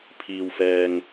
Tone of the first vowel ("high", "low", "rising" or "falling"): low